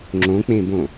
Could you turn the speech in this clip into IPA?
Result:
ŋ͡ǁ õ k͡p ẽ b õ

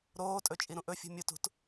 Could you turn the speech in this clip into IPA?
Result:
ɾ oː tʼ ɵ t͡ʃʼ i ɾ ũ ʔ ɵ fʲ ṳ mʲ u t ṳ t

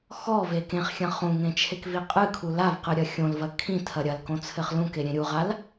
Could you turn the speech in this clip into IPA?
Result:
x ɔ v e k ẽ χ xʲ ɐ̃ χ ũ ŋ ẽ t͡ʃʰ e k v i qʼ ɨ kʰ u l a v q ɨ ɾʲ ɐ xʲ õ l v ɐ kʰ ĩ tʰ ɐ ɾʲ ɐ l k õ t͡sʰ ɘ χ l ũ k e ɾʲ ẽ ɾʲ u ʁ a l

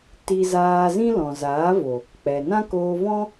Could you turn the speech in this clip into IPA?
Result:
t i˧ z aː˧ z ĩ˦ l ɔ̃˨ z aː˨˦ v o˨ | k͡p ɛ˨ n ã˦ k oː˧ v ɔ̃˦

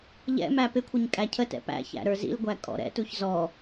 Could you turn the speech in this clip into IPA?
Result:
ʎ ɛ̰ m æ p ɪ kʷʰ ə ɲ kʼ æ cʰ ə t ɛ̰ p æ̰ ç æ̰ ɾ ə˞ z ḭ l ɡʷ æ kʼ ɔ̰ ɾ ɛ̰ t u ç z ɔ

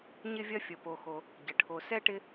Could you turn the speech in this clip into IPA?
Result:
ɲ ɪ˥ vʲ ɐ˥ fʲ ə˨ p o˨ x o˨ | ɟ ə˩ ʈʰ o˨ s ɛ˥ ʈ ɪ˦

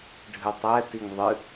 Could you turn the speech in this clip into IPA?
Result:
ɖʱ ɨ tˤ ɛ t i ŋ ðˤ ɨ

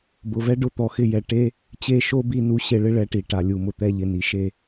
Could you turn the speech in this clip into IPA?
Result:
b ʊ˨ v ɛ˦ ɖ ʊ˦˨ t̪ ɔ˨ x ɪ˧ j ɛ˨ ʈ e˦ | t͡ɕ e˦˨ ʃ o˦ b i˧ n u˧ ɕ e˧ ɭ ɪ˦ ɭ ɛ˧ ʈ i˨ ʈ a˨ lʲ u˨ m ʊ˨ t̪ ɛ˧ ʎ ɪ˨ n i˨ ʃ e˦˨

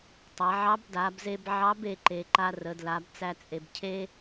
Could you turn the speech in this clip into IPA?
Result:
tˤ æ˩˧ ʕ ɑ˧˥ b d a˩˧ b z e˧ b ʕ ɑ˧˥ b e˩˧ ǃ e˩˧ ǃ a˧ r ə˩˧ d l a˩˧ b t͡s æ˧ t͡sʼ e˩ b cʰ e˥

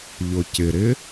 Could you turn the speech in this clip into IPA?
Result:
ʎ ʊ c ɪ ɾ ɪ

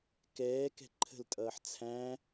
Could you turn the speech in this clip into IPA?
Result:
k ɛː k ɛ̤ ǃʰ ə̤ l tʼ ʌː ħ t͡sʰ æ̃

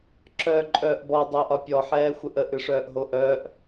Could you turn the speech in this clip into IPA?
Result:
ǁ œː ǃʼ œː ʔ b ɔ dˤ œː ʔ ɒ pʲ ɔ ħ ɛː xʷ ə ʔ ə ʔ ɨ ʂ œː ʔ ɦ o ʔ œː ʔ

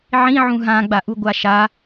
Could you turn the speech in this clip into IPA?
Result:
ʕ ĩ ʕ ũ ɦ ã ɡ͡b a ʔ u ɡʷ a ʃ a

